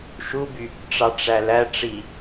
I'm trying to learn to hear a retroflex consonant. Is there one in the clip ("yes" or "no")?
yes